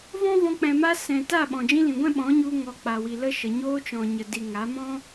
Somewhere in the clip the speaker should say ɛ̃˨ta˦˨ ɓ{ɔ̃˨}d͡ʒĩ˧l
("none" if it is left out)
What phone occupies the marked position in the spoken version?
ɔ̃˨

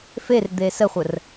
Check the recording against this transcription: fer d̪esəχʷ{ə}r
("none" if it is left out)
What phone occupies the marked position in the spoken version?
ə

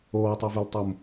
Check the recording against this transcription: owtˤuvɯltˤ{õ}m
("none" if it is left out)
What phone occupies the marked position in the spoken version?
o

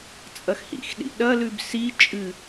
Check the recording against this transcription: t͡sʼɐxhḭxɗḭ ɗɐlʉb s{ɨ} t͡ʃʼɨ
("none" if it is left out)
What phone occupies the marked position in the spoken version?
i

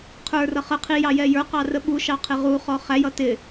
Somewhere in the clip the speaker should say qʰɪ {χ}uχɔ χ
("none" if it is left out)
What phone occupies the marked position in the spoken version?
ʁ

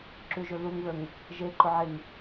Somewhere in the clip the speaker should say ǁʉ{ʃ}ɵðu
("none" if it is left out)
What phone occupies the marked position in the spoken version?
ʒ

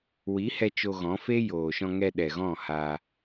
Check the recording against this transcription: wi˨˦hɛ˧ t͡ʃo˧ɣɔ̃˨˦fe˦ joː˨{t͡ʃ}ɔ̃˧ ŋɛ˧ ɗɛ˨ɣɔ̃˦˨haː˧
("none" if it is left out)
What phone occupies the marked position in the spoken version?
ʃ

